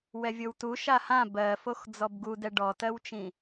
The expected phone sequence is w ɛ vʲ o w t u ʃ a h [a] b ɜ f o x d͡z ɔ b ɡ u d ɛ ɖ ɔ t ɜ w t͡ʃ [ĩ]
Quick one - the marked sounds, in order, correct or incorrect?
incorrect, correct

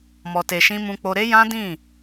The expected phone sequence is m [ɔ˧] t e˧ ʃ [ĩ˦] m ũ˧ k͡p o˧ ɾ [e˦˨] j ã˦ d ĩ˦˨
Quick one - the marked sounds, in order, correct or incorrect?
correct, correct, incorrect

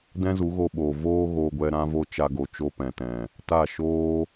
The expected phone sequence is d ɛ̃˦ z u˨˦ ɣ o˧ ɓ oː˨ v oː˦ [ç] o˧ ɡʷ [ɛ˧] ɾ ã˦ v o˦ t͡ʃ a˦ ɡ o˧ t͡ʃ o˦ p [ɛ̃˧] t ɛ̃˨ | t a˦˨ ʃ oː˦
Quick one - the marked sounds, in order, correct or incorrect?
incorrect, correct, incorrect

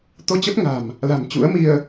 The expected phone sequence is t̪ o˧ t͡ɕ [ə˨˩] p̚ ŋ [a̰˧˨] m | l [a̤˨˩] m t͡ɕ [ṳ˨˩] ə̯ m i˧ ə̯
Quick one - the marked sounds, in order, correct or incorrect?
incorrect, incorrect, correct, incorrect

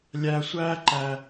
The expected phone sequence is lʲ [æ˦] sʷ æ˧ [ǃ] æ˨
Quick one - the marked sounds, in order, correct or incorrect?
incorrect, correct

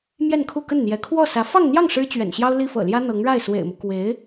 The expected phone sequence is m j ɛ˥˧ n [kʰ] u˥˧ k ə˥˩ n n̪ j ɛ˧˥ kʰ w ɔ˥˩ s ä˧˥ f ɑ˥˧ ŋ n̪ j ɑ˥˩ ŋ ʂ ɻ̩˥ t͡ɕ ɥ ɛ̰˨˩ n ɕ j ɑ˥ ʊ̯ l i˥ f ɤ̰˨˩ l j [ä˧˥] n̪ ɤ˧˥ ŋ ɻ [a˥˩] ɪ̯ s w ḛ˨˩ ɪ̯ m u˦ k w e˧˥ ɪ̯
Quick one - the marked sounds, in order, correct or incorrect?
correct, incorrect, correct

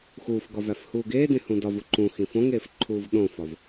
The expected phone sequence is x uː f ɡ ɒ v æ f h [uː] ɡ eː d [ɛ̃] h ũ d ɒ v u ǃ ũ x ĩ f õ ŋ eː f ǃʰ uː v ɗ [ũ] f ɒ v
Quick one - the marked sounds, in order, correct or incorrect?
correct, incorrect, incorrect

